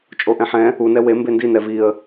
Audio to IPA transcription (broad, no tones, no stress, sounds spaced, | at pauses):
t͡ʃʼ o ʔ ɛ̃ ħ ɛ̃ | u n ɛ w e m b e n d i n ɛ v i ə̯